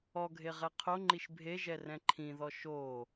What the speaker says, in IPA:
ɔ ɡʱ e ʁ ɛ qʰ o ŋ͡ǃ i ʃ bʱ e ʒ ɛ r ɛ̃ ǃʰ ĩ ð ɔ ʃ oː

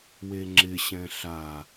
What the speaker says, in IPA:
w e ŋ͡ǁ ɪ ɕ ɛ̃ ɬ a

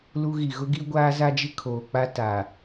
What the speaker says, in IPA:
l u˦ ɣ i˨ ɣ ʊ˦ ɡ i˦ ɡʷ aː˦ z a˦ d͡ʒ ɪ˦ kʰ oː˨ k͡p a˦ t aː˨

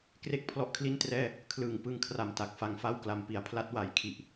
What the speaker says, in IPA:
k r e˥˩ k̚ pʰ l ɔ˦˥ ʔ kʰ l i˥˩ n t r ɛː˥˩ | kʰ l ɯː˨˩ ŋ p ɯ˧ ŋ kʰ r a˨˩ m t a˨˩ k̚ f a˧ ŋ f a˥˩ w k l a˧ m p i˩˦ a̯ pʰ l a˦˥ t̚ w a˨˩ j kʰ i˨˩ ʔ

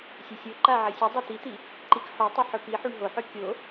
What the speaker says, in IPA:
sʲ ɐ sʲ o ǃ a ʕ ɐ sʲ ɵ dˤ a t̪ i t̪ i | ǃ i k ħ o tˤ ʉ ħ ɵ p i ħ u ɳ ɦ o ħ ɵ kʲ o

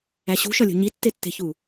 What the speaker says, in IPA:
æ ɕ ṳ ʃ ɒ lʲ o̤ ɲ i tː e tː e̤ ç u

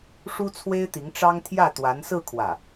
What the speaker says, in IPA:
ʂ u˥ t͡sʰ w e˥ ɪ̯ t̪ i˧˥ ŋ ʈ͡ʂ ɑ˥ ŋ t̪ʰ j ä˥˩ t̪ w a˧˥ n s ɹ̩˥˧ kʰ w ä˥˩

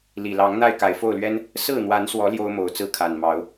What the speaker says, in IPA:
l i˨˩ l ɑ˨˦ ŋ n̪ a˥˨ ɪ̯ k a˨˩ ɪ̯ f o˥˨ ʊ̯ l ɥ ɛ˦ n | s ɹ̩˥˨ n̪ w a˨˦ n s w ɔ˨˦ l j o˦ ʊ̯ m o˨˩ ʊ̯ t͡s ɹ̩˥˨ kʰ a˨˩ n m ɑ˨˦ ʊ̯

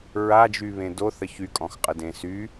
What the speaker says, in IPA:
ɹ a d͡ʒ y β ẽ d o θ ə ç y kʼ ɔ̃ x qʼ ə d ẽ s y

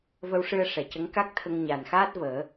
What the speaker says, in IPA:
v ə˧ w ʂ ɨ˧ ə̯ ʂ ɛ˨˩ c ə˧˥ ŋ k a˦˥ k̚ t̪ʰ ə˧ ŋ ɲ a˨˩ n x aː˦˥ t̚ v əː˨˩˦

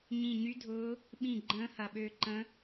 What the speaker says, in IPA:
ɲ ĩ˧˩ ɲ y˧˥ dʱ ʊː˧˥ | ɓ ĩ˧˩ ɡ͡ǃ ə̃ː˧˥ h ɐ˧˩ ɓ øː˧ ǃ ə̃˧˥

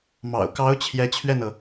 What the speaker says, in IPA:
m ɑ̰˨˩ ʊ̯ k ɑ˧˥ ʊ̯ t͡ɕʰ j ɛ˧˥ t͡ɕʰ ɥ ɛ˥˩ n ɤ˩

